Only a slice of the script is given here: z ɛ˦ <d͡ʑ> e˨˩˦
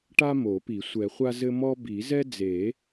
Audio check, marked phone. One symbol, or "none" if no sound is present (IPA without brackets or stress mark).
d͡z